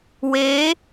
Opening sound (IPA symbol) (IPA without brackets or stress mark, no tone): w